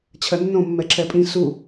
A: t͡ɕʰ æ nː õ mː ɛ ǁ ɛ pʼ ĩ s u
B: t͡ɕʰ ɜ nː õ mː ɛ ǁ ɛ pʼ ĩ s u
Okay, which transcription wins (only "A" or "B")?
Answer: B